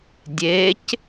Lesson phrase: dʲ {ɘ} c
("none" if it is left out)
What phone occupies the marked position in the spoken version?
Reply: e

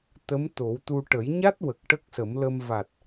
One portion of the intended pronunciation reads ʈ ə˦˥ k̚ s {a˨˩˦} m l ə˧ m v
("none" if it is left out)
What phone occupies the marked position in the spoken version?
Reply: ə˨˩˦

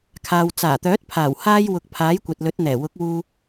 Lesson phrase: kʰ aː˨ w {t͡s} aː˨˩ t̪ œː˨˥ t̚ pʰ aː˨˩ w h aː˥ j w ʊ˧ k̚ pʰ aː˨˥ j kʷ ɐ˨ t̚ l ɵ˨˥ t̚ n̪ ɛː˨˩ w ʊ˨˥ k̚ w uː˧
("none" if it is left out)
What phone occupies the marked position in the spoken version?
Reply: t͡s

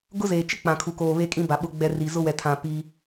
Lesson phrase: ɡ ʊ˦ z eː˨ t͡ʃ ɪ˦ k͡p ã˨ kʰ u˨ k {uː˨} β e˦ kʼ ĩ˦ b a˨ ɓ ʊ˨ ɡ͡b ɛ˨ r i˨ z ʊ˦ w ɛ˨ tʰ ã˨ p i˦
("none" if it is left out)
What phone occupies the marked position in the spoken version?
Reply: oː˨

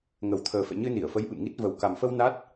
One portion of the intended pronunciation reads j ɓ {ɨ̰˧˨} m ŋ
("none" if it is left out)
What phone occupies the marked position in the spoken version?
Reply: ɨ̰˧˨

